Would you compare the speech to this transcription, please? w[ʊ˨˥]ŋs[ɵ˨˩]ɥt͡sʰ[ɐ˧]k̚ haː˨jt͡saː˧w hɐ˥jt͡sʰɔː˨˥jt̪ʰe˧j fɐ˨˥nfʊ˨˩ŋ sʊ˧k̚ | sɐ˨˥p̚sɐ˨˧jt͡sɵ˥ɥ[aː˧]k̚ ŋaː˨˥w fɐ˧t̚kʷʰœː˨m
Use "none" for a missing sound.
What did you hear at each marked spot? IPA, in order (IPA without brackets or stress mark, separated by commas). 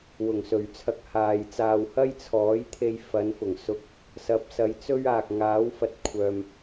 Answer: ʊ˨˩, ɵ˨˩, ɐ˧, aː˨